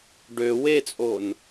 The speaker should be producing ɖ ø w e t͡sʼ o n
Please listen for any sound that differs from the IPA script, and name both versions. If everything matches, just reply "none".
none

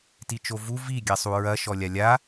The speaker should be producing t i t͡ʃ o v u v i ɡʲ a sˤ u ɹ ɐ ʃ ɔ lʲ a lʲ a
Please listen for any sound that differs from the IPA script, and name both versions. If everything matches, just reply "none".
none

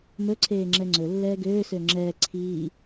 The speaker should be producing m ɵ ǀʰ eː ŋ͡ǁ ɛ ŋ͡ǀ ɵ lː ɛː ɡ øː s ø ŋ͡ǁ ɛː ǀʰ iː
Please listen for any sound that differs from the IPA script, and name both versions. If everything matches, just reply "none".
none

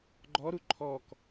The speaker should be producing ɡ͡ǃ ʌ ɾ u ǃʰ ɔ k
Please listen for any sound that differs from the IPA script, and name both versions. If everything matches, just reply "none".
ʌ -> ɔ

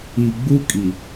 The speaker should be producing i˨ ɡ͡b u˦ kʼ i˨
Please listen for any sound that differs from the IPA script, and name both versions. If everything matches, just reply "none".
none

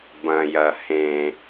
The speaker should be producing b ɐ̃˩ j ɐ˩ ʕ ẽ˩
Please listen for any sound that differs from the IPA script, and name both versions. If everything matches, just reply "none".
ʕ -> h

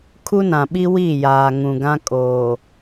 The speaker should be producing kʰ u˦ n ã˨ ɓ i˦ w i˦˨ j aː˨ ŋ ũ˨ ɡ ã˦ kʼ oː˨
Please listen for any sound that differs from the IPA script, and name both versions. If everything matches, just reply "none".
none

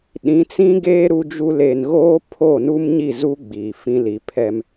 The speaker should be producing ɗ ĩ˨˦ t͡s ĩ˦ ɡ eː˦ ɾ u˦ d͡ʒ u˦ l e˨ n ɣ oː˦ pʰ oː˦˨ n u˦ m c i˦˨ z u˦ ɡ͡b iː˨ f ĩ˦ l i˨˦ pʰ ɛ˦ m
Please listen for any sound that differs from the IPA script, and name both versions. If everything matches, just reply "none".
c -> ɲ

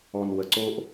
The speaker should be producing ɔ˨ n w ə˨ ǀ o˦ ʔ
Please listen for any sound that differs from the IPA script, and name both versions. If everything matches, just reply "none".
none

